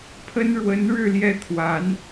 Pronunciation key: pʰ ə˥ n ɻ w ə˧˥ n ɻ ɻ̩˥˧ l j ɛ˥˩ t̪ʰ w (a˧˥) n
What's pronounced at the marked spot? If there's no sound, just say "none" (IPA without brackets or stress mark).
a˧˥